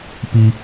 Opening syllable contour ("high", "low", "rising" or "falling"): low